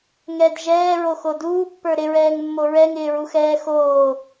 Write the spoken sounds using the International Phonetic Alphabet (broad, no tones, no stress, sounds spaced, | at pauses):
ŋ ɛ d ʒ ɛː ɹ o x o d uː pː ə˞ ɾ ɪ ɹ ɛː ŋ mː o ɹ ɛ ŋ ɪː ɹ u x ɛː x oː